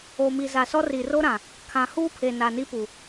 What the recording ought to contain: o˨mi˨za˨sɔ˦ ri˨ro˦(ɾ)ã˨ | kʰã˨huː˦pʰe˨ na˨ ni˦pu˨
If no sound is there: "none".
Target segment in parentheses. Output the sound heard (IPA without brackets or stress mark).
ɾ